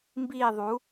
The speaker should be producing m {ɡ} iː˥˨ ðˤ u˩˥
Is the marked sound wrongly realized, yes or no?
yes